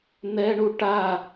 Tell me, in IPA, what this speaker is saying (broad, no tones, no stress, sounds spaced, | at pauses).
n̪ ɛ ɳ u ʈ a